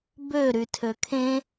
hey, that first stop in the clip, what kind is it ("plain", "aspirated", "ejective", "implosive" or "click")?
plain